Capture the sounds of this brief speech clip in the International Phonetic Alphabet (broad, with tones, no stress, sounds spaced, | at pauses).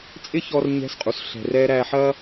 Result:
t͡sʼ ɪ˦ ç ɔ˧ r ɲ ɛ̤˧ s qʼ u˨ s ɬ ɛ̤˧ r ɛ˦ ɾ æ˧ ħ ɐ˦